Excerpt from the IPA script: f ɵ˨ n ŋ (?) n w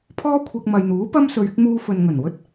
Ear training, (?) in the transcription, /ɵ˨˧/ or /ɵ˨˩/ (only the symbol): ɵ˨˩